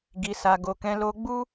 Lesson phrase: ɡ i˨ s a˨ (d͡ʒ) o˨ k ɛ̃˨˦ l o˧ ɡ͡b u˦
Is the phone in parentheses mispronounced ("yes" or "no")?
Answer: yes